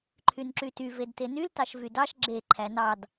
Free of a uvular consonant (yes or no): yes